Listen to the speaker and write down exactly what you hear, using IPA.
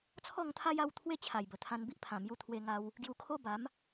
t͡sʰ ɔ˥˧ ŋ t̪ʰ a˦ j a˥˧ w t̪ʰ w e˥˧ t͡ɕʰ a˨˩ j b ə˨˩ t̪ʰ ã˧ n b i˦ ʔ pʰ ã˨˩ m j u˧ t̪ʰ w e˧ ŋ a˧ w | ɡ j u˧ kʰ o˦ b a˨˦ m

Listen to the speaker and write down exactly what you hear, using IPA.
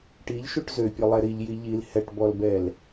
ʈ i ʎ ʃ u ʈ z ø pʲ o lˠ ɛ ɾ i ʎ j i ʎ i l h ɛ ʈ b ɔ l b ɛ l

